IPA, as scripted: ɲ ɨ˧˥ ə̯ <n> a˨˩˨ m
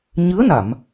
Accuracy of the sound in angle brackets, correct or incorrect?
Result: correct